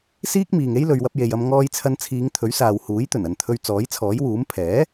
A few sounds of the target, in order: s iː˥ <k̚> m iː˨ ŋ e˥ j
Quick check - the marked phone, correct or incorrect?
correct